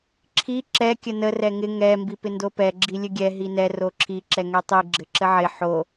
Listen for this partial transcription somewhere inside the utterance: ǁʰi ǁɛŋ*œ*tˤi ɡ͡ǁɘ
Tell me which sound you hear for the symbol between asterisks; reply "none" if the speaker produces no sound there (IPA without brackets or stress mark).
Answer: ɛ